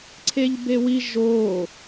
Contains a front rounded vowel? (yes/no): no